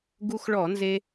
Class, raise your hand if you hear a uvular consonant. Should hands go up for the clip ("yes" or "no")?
no